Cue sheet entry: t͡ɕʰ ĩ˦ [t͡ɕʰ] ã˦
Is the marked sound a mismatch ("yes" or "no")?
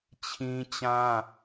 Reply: yes